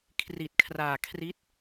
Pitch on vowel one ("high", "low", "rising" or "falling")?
low